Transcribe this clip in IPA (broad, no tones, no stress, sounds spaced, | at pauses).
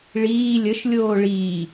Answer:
ɭ iː lʲ ə ʃ lʲ oː ɭ iː